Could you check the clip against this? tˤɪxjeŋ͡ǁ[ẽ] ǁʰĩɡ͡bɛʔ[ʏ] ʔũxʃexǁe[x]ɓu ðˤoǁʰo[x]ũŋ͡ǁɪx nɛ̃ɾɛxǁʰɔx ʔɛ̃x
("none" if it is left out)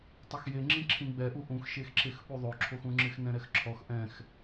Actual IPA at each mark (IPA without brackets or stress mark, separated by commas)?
ĩ, u, x, x